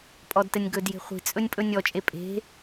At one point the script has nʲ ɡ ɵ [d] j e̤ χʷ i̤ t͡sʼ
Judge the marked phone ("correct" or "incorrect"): correct